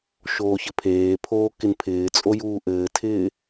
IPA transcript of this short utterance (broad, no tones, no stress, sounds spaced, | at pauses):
ʃ oː ç ɘ pʰ eː pʰ oː k ɪ n pʰ ɪː t͡sʼ o j uː ʔ ɘː tʰ ɪː